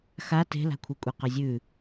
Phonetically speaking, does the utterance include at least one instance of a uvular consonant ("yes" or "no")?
yes